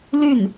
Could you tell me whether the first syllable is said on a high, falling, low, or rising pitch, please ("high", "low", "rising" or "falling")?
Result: falling